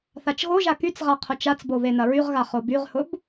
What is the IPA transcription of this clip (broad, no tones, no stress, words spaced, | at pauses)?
θat͡ʃɣoʒa kyt͡sʁa qʰʊt͡ʃat͡sbo βenɐɹyʁɣa χobyʁhʊb